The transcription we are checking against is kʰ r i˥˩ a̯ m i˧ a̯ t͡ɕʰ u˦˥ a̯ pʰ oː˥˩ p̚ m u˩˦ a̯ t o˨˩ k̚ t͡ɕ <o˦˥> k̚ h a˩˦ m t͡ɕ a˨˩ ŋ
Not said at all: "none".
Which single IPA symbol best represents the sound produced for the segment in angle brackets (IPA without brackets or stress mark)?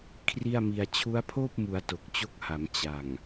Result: o˦˥